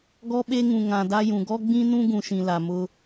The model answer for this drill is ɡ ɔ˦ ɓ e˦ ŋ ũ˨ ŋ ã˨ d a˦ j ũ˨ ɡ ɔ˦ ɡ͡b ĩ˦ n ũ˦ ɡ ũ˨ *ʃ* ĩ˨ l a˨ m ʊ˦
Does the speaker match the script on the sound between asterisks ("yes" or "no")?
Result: yes